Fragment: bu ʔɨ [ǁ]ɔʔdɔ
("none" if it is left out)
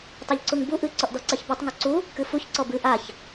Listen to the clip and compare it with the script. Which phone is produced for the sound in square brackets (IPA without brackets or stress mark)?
ǀ